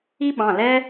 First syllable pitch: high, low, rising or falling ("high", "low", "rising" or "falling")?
high